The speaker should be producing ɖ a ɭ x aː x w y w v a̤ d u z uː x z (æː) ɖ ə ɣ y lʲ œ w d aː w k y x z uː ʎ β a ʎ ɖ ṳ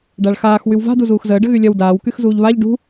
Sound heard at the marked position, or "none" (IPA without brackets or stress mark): əː